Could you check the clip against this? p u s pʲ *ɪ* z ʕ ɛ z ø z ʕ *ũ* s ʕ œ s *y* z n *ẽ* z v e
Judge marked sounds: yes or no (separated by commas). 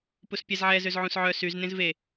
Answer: no, yes, yes, yes